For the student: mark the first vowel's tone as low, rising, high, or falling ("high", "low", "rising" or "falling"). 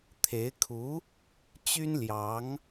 rising